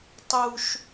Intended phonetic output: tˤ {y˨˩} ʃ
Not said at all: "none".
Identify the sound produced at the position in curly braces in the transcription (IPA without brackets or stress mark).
u˨˩